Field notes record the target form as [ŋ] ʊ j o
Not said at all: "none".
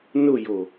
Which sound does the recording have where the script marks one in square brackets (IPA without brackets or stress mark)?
n